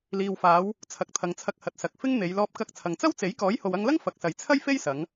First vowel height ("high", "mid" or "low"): high